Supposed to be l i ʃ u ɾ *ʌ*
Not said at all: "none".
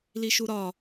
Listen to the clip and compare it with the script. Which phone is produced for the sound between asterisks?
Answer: ɒ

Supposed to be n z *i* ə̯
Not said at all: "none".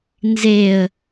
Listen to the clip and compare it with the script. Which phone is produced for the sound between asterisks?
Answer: e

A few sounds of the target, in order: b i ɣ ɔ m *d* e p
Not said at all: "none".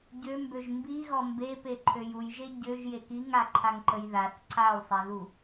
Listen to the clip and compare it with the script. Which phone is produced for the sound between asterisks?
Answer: b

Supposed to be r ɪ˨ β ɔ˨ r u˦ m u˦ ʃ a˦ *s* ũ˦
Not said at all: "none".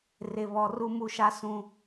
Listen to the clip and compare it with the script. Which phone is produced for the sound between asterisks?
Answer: s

